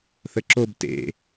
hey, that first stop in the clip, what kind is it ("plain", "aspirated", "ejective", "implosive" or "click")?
click